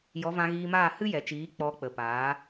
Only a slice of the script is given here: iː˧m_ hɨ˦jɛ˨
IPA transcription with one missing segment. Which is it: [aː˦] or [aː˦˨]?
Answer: aː˦˨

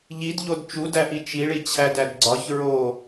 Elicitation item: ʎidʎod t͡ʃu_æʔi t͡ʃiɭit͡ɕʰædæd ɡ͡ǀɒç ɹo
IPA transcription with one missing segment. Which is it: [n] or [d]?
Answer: d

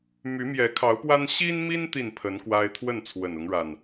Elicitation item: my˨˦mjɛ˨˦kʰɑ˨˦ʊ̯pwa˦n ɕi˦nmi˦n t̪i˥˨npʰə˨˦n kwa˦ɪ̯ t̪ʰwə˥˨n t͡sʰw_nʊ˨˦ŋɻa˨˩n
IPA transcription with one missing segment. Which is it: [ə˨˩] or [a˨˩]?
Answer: ə˨˩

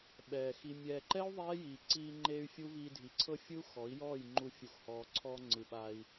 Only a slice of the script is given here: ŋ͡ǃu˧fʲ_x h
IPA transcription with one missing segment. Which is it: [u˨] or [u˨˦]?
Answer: u˨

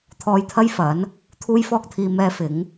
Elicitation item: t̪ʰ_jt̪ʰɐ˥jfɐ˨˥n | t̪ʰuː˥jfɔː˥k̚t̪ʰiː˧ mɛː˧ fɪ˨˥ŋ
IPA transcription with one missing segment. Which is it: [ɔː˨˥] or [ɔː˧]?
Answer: ɔː˧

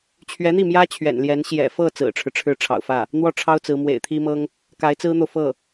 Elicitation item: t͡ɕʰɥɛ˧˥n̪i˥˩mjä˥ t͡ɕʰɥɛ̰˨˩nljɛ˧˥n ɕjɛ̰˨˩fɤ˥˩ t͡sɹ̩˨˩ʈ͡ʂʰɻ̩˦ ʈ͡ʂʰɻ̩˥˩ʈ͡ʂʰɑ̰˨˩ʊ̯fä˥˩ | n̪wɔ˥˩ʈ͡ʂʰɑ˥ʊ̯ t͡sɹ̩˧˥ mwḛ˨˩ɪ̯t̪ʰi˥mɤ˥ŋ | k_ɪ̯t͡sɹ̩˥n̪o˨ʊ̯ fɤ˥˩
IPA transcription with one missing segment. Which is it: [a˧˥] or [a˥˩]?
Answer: a˧˥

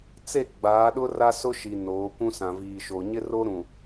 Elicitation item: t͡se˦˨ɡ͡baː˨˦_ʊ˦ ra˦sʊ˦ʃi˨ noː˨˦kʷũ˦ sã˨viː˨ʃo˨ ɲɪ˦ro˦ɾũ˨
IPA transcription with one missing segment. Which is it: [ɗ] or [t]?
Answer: ɗ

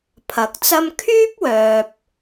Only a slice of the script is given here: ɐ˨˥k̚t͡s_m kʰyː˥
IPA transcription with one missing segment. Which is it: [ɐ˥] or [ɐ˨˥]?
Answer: ɐ˥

